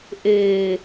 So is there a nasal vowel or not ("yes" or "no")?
no